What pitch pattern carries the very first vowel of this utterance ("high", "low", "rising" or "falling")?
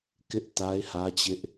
high